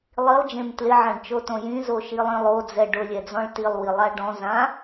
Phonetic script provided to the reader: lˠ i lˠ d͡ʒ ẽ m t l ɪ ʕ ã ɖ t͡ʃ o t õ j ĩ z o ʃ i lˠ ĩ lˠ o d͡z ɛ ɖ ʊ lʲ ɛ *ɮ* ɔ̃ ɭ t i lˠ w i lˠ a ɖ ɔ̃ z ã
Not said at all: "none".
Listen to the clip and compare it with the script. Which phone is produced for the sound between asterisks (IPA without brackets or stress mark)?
d͡z